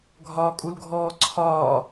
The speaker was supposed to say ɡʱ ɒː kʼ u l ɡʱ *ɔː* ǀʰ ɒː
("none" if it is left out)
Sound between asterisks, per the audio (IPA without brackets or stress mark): ɔː